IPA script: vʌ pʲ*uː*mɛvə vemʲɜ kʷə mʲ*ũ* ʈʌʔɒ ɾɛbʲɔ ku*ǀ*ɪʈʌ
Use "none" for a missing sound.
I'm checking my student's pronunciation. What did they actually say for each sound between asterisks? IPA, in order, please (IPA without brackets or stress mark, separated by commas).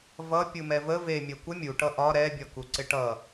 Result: u, u, ǀ